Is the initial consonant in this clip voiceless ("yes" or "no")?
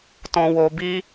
yes